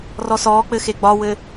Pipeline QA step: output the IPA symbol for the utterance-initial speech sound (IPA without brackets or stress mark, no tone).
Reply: r